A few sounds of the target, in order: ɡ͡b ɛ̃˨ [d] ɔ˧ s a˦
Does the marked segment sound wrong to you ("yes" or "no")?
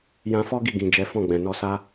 yes